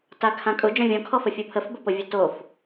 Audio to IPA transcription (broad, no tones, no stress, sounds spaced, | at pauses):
t a kʰ ã kʼ ʊ d͡ʒ ɔ̃ vʲ ɔ̃ kʰ ɔ f ə fʲ o pʰ ə f b ə p o vʲ o t o f